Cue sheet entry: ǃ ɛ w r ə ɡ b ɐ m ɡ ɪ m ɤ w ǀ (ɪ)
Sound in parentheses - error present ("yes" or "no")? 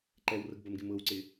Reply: no